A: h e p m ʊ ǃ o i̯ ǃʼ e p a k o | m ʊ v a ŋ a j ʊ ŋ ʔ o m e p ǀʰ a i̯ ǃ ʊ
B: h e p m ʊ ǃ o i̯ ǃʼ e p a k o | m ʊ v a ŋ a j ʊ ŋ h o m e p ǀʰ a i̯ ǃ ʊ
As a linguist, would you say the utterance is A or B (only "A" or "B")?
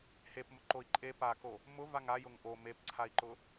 A